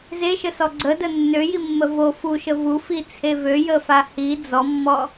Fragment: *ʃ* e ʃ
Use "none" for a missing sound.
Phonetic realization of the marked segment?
z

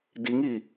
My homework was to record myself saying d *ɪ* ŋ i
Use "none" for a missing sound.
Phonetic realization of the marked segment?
i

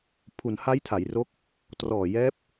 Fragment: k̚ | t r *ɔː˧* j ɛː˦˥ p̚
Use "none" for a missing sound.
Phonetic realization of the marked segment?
ɔː˨˩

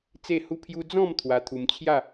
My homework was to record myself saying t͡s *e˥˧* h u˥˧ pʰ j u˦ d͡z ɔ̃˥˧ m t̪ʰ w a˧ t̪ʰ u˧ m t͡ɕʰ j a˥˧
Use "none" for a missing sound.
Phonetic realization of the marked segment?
e˥˧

